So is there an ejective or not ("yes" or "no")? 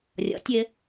no